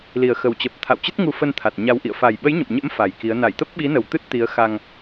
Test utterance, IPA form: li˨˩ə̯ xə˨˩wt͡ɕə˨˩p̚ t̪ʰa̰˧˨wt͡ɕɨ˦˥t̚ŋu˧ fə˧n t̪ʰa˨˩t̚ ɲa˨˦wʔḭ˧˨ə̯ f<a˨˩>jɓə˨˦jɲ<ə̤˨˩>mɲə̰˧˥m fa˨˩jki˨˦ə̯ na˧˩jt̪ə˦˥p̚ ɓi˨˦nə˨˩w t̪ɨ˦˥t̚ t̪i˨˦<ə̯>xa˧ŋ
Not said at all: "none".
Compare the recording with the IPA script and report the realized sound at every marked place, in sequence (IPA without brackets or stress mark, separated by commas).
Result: a˨˩, ə̰˧˨, ə̯